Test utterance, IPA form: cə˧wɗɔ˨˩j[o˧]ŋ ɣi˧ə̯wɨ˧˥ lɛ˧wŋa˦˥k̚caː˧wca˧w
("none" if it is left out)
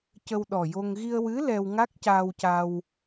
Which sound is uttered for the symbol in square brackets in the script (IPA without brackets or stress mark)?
o˧